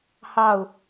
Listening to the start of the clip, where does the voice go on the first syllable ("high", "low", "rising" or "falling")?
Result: falling